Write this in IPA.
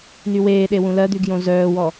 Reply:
nyweːɗe wũlɜd̪y ɡjõzœːwɔ

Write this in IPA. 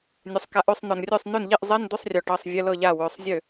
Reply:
nʲɵ˩˧sˤka˩˥ʔø˩˧sˤ n̪ɔ˩nrʲø˥˩sˤ nø˥˩nʎi˥˩ʔ zˤe˧˥˧nd̪ɵ˧˥˧sˤrʲɔ˩ʈɤ˩˧˩sˤ vʲə˧˥˧lɤ˥˩ʎa˥˩ wɵ˩˧˩sˤzʲø˥˩

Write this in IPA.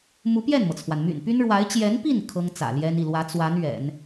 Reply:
mu˧˥pjɛ˥˩nmɤ˩t͡sʰwa˩n my̰˨˩npy˥nɻwa˧˥ɪ̯ t͡ɕjɛ˧˥npi˥˩n kʰɤ˥ŋt͡sä̰˨˩ljɛ˥n i˥˩lwä˧˥ t͡swa˧˥n ɥɛ̰˨˩˦n

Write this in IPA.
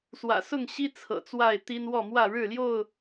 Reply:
swä̰˨˩ sʊ˥˨ŋɕi˦ t͡sʰɤ̰˨˩t͡swa˥˨ɪ̯t̪i˦n wɔ˥˨mwä˥˨ ɻɻ̩˥˨ljo˥˨ʊ̯

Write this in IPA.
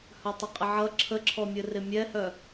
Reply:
hœtˤəqʼɪʕʌ ǁʰəǁʰɔmʲɘ rɪmʲɛhœ

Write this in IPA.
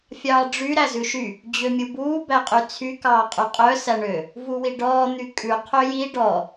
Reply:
fʲɑːɖ͡ʐy ɾæzʉʃy | d͡ʑømʲubuː bæqʼyt͡sʰy kɑːqʼyqʼœ sæɳø | vuwiɖɔː n̪ykʼʉ qʰøji ɖɔ

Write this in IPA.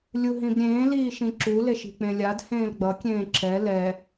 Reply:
lʲuɦĩbɾʲẽː liːʃĩǁu leʃi̤k͡pẽlʲad hẽːlɡ͡bʌ kʲẽːǁɛ lɛ

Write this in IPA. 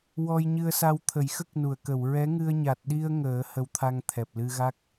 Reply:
wɔ˧jɲɨ˧ə̯sa˧w t̪ʰə˨˩˦jxə˦˥k̚nu˨˩˨ə̯kə˨˩˨w ɹɛ˧˥ŋɨ˧ə̯ ɲa˨˩t̚ɗi˧ə̯ ŋəː˨˩˦ hə˧wt̪ʰa˧ŋ t̪ʰɛ˨˩p̚lɨ˧ɣa˦˥k̚

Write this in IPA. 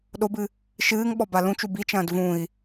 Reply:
ɗobɨ | ʃɨːŋɓɔ balũt͡ʃu bit͡ʃɐ̃ːd vũi̯

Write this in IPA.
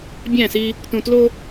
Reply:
bʲæ̃˦˨si˦ | tũ˨tlo˦

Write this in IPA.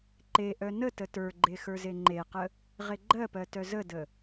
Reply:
ǃeʔœ nətə tə˞ɡ͡ǃe xə˞zeŋ͡ǃeqə | ʁeɡ͡ǃɜpɜ tœzədə

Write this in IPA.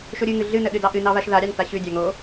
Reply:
ʃoɾʲɨŋɨ ɮɨnə ɗɨdɑʔɨnɑ βaʃðaɾʲɑn taɕʉdʲɑ ŋo

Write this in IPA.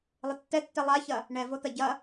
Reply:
lˠɪtːɛtːɛ lˠaçɐ | ɳɛvot̪ɐ ɟɐ

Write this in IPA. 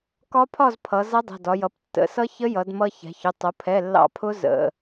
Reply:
kɒ˧˥pʰɒ˥˨z pʰʌ˩˧ zʌ˧˥dˤɛ̤˩˧˩dɒ˩˧jʌ˩˧˩p tːə̰˩˧˩sʌ˧˥ çə˧˥jʌ˩˧d mʌ˧çɛ̤˩˧çʊ˩˧˩ tˤʊ˩˧pʰɛ˩˧˩ lːɑ̰˧pʰʊ˧˥ zə̰˩˧˩

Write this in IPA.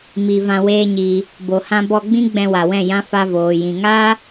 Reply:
mi˨ vã˧weː˦ɲiː˧ | bo˨hã˧bɔ˧ɡ͡bĩ˦ ɡ͡bɛ̃˧wa˨wɛ̃˦˨ jã˧ fa˧voː˨jĩ˨ ŋaː˦

